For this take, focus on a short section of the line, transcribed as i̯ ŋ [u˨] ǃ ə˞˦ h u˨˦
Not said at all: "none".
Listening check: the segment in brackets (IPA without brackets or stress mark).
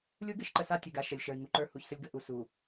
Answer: u˨